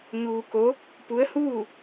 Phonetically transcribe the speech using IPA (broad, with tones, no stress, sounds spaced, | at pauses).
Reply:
ɲ uː˧ k o˧˥ | p u˧˥ ə̯ h uː˥˨